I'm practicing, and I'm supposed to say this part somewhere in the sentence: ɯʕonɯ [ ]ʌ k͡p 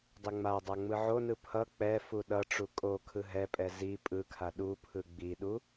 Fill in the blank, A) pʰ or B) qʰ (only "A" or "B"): A